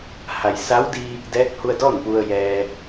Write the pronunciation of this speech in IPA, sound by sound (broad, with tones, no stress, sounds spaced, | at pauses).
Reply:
h a˩ j s a˧˥ w d i˧ | d ɛː˧˥ k̚ h u˧ ə̯ d ɔː˥˨ n p u˧ ə̯ j ɛː˧